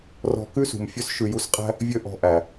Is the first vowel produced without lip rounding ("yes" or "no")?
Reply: no